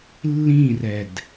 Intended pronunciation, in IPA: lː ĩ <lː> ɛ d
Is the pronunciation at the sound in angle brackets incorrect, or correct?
incorrect